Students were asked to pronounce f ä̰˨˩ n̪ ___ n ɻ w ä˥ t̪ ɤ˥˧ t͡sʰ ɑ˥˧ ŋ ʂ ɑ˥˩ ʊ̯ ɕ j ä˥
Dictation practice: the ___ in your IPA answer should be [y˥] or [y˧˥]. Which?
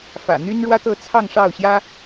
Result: y˥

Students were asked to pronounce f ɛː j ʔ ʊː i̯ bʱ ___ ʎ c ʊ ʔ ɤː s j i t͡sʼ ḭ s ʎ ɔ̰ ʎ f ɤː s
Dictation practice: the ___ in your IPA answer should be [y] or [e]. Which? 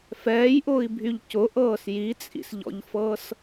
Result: y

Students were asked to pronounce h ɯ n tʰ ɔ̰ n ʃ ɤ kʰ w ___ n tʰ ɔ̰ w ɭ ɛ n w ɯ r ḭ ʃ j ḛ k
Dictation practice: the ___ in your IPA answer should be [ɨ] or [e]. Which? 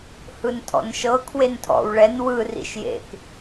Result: e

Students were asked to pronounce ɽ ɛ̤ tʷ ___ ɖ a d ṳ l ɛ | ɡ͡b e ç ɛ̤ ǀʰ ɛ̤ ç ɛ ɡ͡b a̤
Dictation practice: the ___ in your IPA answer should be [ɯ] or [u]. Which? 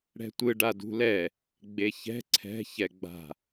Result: ɯ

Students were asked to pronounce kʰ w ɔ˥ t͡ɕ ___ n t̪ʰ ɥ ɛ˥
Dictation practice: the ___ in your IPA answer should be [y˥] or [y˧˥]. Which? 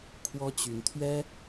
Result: y˧˥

